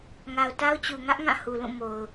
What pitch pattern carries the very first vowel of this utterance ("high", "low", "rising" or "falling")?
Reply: low